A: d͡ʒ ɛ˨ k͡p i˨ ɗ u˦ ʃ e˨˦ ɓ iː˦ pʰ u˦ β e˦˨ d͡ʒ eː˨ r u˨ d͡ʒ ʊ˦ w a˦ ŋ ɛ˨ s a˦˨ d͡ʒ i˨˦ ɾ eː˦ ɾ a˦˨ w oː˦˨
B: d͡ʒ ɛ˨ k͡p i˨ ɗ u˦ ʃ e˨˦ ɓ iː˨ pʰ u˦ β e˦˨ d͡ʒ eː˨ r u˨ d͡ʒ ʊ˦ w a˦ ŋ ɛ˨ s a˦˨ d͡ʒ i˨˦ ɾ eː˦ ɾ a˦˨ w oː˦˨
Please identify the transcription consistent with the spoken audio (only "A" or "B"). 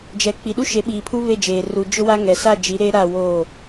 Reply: B